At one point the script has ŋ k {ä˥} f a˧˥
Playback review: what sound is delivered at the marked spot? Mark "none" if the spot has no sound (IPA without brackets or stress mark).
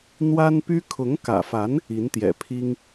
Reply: ä̰˨˩